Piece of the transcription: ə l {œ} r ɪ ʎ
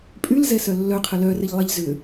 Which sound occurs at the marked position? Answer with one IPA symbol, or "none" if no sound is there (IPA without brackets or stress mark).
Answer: œ